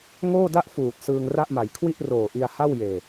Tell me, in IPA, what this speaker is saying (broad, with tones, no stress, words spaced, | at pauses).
ŋoː˥˩da˥˩ʔfuː˨˩t̚ sɯː˧ŋra˥˩ʔma˩˦j kʰwi˥˩ʔroː˨˩ʔi˧a̯ha˥˩w jeː˧